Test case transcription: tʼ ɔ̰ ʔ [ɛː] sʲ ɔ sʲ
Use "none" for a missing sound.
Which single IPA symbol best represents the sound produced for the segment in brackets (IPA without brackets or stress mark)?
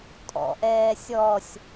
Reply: ɛː